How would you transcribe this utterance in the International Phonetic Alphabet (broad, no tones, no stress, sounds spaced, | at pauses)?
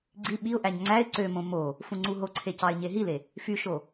ɡ͡ǀ i ɓ i ʊ̯ ʔ æ ɲ ŋ͡ǀ æ ɪ̯ ǀ ø m õ m o | f ũ ŋ͡ǀ u ɦ o ǀʰ e c ɑ ɪ̯ ɲ e ɦ i l e | f y ʃ o